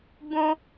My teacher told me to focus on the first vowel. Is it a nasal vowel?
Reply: yes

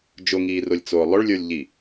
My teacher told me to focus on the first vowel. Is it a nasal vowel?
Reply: no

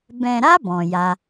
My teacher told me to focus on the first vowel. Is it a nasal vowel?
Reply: yes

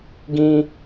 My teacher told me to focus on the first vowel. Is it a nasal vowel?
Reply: yes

